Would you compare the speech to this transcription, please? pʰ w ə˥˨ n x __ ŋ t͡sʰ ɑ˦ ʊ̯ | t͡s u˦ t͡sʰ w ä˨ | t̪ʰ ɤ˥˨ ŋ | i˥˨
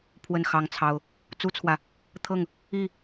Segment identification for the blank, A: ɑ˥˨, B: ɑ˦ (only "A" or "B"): B